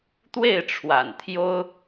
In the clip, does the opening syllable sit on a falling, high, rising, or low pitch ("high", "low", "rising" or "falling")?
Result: falling